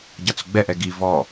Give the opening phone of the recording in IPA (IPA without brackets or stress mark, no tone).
ɟ